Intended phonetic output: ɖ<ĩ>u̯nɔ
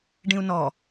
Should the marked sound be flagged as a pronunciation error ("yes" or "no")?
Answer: no